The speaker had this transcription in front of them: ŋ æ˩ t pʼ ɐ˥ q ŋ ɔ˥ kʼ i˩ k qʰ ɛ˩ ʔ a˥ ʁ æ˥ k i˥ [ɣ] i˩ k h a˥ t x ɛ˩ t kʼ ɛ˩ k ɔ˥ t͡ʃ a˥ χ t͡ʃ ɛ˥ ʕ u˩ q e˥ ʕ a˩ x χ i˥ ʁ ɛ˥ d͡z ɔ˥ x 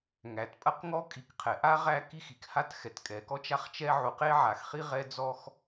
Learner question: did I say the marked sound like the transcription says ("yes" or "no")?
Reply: no